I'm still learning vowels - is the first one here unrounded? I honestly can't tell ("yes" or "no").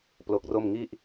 no